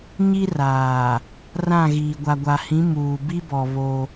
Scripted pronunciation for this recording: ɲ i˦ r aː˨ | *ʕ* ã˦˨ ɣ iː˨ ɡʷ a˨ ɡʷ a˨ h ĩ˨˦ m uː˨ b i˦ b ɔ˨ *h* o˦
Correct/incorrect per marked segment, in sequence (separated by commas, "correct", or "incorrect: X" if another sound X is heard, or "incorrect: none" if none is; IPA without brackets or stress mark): incorrect: r, incorrect: β